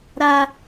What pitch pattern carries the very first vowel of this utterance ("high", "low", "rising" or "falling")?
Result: high